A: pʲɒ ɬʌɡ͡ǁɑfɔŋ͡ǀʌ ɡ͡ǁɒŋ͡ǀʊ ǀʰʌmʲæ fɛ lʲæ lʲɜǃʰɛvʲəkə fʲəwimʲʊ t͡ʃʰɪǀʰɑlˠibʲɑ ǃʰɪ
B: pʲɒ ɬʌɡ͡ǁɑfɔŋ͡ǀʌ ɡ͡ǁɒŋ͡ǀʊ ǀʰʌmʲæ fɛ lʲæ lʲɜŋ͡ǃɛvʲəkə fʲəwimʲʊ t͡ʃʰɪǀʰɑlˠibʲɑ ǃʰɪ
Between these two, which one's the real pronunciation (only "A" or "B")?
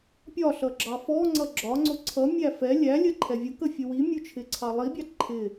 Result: A